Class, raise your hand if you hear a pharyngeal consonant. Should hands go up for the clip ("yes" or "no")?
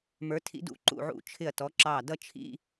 yes